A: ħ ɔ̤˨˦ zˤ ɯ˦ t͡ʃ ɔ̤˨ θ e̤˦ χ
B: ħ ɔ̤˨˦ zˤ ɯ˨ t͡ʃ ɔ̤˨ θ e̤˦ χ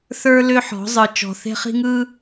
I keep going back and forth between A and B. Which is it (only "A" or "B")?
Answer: B